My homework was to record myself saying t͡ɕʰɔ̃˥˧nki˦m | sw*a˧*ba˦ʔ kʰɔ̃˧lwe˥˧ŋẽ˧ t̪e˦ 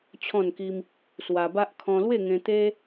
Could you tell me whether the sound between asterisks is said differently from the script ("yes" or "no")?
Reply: no